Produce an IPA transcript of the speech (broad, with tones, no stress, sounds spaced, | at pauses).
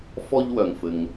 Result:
f ɔ˥ ʎ w œ˩ ŋ f ɘ˩ ŋ